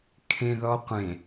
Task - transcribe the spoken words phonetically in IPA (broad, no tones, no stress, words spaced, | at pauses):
kʰẽðɔqʷẽ